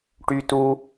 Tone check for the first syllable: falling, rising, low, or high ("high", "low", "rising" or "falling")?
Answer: high